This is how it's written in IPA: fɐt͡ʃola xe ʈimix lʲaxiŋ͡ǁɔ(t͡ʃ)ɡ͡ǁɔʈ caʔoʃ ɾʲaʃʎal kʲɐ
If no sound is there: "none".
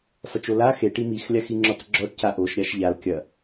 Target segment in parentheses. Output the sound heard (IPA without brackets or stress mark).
t͡s